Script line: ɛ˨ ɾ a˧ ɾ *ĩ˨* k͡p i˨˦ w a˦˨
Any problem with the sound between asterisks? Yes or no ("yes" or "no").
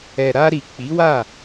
yes